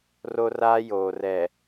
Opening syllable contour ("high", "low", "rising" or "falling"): high